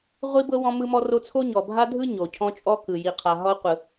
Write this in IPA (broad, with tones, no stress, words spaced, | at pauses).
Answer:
ʁʷi˦bɤ˦ wɔ̃˦mɯ˦mɔ˦ro˦ t͡sʰo˦ɲɔ˨ bʱa˦dʱɯ˦ ɲo˨cʰɔ̃˦ t͡ʃʼɔ˦kɯ˨ ji˨qʰa˨ ɦɔ˦qʷɯ˨